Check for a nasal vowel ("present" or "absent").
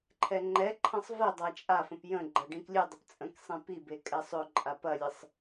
present